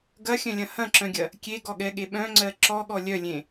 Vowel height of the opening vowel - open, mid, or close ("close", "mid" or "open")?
open